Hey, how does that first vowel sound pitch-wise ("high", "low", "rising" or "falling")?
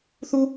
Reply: high